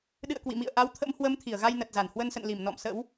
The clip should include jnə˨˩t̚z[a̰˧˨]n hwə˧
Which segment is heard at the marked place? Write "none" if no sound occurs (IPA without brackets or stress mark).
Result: a˧˩